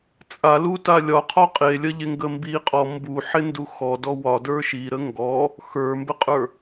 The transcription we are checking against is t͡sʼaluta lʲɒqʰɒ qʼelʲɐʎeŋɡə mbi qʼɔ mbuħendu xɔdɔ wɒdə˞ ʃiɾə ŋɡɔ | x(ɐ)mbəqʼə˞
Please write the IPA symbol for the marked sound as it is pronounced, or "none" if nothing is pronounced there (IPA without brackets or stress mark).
ə˞